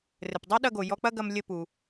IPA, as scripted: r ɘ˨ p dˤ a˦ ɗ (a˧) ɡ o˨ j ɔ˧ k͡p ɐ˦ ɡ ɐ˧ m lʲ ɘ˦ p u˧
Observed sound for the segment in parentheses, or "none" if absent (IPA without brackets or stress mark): ɐ˧